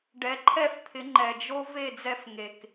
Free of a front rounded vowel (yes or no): yes